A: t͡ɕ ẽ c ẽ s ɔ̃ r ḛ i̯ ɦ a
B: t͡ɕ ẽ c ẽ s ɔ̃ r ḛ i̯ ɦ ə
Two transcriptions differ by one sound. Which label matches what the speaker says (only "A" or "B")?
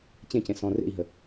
B